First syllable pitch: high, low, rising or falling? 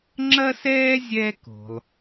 high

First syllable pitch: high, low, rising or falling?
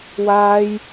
high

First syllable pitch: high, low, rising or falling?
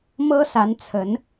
high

